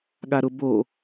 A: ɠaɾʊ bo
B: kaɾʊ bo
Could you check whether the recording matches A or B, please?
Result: A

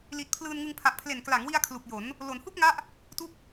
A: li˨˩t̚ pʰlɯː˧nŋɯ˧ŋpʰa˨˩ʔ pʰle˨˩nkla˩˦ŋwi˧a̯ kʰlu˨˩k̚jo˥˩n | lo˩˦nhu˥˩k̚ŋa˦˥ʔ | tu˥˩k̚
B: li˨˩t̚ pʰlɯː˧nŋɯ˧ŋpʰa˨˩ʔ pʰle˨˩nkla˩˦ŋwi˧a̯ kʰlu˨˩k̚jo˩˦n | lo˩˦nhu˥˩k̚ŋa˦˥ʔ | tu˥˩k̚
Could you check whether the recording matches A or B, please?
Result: B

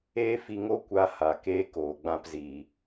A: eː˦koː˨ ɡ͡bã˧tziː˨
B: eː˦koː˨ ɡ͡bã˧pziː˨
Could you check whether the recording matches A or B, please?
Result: B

